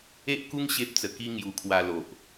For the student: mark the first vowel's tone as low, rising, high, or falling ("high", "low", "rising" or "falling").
high